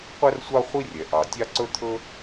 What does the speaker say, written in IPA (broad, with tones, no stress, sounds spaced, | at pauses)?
qʷ ɛ˥ r sʷ ɑ˥ χʷ i˥ rʲ ɛ˩ ʔ ɑ˩ tʲ ɑ˥ ǀ ɵ˥ t̪ʰ ɵ˥